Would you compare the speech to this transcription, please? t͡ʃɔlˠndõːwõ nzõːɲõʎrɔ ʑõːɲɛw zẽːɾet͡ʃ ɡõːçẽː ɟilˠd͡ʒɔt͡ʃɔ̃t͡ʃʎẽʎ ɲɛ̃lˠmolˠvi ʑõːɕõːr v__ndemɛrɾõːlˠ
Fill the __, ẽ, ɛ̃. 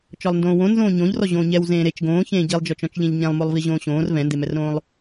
ɛ̃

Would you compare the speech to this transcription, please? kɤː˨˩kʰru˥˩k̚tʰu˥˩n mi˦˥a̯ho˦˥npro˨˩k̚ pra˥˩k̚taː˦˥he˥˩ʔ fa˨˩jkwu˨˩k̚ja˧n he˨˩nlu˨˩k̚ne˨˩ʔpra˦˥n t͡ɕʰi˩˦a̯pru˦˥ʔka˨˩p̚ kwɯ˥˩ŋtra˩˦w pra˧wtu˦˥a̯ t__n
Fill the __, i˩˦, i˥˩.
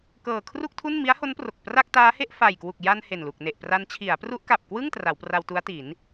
i˩˦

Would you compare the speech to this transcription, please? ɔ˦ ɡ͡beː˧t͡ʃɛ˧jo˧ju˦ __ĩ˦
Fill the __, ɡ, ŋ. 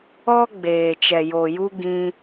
ɡ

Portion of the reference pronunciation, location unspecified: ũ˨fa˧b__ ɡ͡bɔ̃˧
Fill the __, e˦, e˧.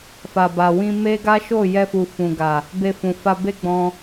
e˦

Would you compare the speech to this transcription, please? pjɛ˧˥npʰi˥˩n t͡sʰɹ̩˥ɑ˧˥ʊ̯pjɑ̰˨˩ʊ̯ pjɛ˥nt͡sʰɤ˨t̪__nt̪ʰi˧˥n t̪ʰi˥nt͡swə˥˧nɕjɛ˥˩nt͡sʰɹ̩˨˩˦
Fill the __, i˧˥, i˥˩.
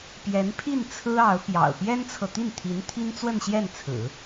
i˥˩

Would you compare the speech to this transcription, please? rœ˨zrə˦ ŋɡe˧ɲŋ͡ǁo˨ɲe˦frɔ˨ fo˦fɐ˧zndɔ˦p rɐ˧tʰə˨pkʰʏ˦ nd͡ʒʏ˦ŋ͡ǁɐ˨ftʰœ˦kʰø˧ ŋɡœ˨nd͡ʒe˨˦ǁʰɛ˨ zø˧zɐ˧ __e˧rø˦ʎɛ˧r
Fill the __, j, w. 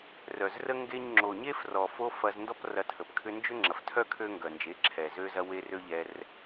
w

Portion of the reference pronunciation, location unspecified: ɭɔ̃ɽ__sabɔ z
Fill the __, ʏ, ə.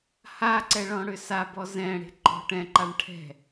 ʏ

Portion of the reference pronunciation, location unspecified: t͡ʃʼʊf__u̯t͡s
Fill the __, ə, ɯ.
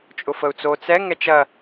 ə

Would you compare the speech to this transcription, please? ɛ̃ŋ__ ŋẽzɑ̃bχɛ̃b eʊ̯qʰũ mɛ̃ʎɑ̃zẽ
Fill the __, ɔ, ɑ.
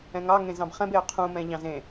ɑ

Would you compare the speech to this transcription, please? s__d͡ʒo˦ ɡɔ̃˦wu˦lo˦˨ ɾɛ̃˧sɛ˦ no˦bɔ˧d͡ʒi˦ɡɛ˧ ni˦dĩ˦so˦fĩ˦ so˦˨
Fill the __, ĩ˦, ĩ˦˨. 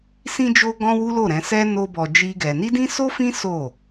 ĩ˦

